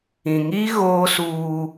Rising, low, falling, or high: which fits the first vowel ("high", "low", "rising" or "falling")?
low